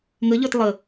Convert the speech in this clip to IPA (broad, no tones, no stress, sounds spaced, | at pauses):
ŋ ə ʎ ə˞ t lˠ ə